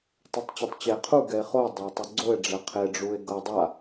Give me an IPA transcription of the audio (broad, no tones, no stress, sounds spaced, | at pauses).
tˤ o tˤ t͡ɕ ɵ tˤ t͡ɕ ɛ e̯ qʰ u ɡ ɛ e̯ χ o dˤ a o̯ tˤ o ɡ͡ǀ o e̯ ɖ͡ʐ ɛ qʰ e ɖ͡ʐ u e̯ ɡ ɤ dˤ a